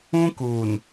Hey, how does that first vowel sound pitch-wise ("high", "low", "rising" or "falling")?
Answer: high